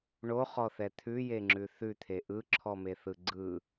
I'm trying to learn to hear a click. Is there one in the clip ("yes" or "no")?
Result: yes